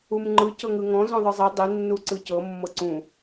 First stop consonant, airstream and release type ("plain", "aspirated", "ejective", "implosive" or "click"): click